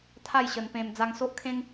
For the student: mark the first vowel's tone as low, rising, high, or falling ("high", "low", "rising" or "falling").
falling